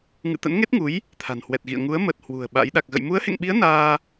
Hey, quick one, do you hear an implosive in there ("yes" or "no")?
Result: yes